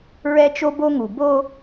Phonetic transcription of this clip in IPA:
ɹɛ˦t͡ʃo˦bo˦ŋu˨ bo˦

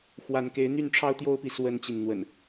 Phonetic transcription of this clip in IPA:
xwa˨˦nke˨˦ɪ̯ n̪y˥˨nʈ͡ʂʰɑ˦ʊ̯t̪jo˦ʊ̯pi˨ swə˦nt͡ɕi˨n n̪wə̰˨˩n

